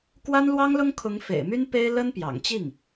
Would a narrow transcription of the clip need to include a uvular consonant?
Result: no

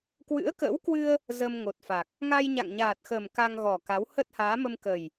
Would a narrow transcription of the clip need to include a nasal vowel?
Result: no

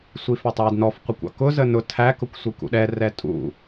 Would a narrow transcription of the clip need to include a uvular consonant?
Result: yes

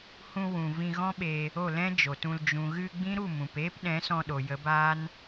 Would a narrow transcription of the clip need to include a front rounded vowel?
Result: no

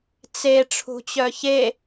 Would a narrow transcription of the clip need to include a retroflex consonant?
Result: yes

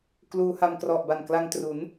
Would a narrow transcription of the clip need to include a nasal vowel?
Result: no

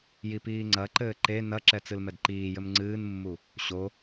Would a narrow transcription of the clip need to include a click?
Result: yes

